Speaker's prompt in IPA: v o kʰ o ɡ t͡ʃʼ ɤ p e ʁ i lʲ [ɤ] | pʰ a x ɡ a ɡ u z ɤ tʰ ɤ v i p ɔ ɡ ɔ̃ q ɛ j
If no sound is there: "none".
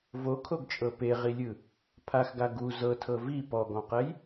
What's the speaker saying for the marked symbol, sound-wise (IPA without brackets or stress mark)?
ɯ